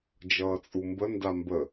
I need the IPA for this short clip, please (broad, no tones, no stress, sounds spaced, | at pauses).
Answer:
d͡ʒ ʌː t͡sʼ u m b ə n d a m b ə